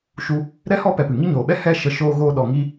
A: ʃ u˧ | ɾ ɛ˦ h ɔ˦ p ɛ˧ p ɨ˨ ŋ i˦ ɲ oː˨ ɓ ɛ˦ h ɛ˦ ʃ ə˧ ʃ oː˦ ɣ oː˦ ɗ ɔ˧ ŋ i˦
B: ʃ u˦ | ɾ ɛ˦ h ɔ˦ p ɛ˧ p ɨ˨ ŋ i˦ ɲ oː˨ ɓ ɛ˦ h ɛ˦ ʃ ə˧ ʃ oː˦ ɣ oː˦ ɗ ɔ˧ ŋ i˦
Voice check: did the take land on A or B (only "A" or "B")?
B